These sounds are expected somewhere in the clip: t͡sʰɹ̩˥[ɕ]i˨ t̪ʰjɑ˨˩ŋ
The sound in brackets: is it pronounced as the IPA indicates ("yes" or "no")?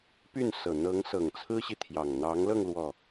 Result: yes